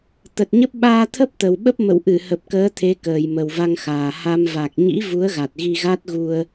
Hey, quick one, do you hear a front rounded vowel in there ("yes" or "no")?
no